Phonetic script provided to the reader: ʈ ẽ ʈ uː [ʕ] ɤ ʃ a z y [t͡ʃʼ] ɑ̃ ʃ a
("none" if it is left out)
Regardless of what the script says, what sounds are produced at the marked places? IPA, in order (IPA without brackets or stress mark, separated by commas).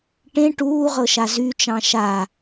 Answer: ʁ, t͡ʃ